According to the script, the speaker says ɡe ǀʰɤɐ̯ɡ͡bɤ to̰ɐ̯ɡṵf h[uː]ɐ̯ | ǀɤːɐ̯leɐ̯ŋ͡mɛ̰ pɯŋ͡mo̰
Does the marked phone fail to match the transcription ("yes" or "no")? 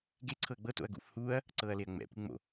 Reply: no